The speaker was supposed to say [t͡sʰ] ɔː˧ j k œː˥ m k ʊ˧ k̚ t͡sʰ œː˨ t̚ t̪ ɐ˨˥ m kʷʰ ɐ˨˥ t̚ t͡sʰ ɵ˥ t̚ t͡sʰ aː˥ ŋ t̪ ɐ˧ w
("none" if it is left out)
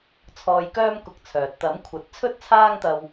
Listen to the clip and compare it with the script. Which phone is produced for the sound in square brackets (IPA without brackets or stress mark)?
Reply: t͡sʰ